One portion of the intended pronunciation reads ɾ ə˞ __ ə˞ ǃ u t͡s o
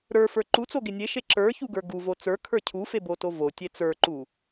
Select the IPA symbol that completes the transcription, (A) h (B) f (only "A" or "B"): B